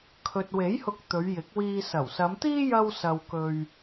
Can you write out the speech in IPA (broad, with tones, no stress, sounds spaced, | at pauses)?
kʰ ɵ˨ t̚ w e˨˥ j h ʊ˧ k̚ t̪ ɵ˨˧ ɥ j ɪ˨˥ k̚ w iː˧ s ɐ˨˩ w s ɐ˨˧ m t̪ iː˥ j ɐ˥ w s ɐ˧ w k ɵ˧ ɥ